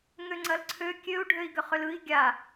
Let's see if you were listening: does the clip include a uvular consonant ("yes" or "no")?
yes